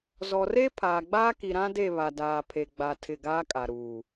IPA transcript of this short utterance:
z ɔ˨ r e˦ pʰ aː˨ ɡ͡b aː˦ k i˨ ɾ ã˦ d e˦˨ β a˨ d aː˨ pʰ e˨ ɡ͡b a˨ tʰ ɪ˦˨ ɡ aː˦ kʼ a˨ ɾ uː˨

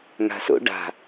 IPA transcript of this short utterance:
ŋ a̤ s o̰ ɖ a̤

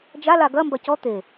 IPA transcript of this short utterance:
d͡ʒ a l a ɡ ɐ m b ɐ c ɔ t̪ e

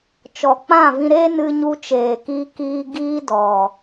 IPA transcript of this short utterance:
t͡ʃ ɔ˨ k͡p ã˦˨ v ĩ˧ ɾ e˦ n ɨ˧ ɲ u˧ t͡ʃ eː˨ k iː˧ k iː˦ ɡ iː˦ d ɔ˨

